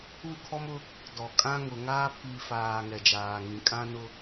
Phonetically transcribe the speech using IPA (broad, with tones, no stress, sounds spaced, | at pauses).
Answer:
u˦˨ kʰ ɔ˦ m ʊ˦ | d ɔ˨ kʼ ã˦ ŋ ʊ˨ ŋ aː˦ pʰ i˨ f aː˨ ŋ ɛ˨ d͡ʒ aː˨ ŋ ĩ˨ kʼ ã˦ n ʊ˦